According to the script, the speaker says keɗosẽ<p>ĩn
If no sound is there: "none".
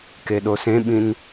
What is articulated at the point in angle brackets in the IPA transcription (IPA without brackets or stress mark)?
ɓ